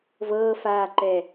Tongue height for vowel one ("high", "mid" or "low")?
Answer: mid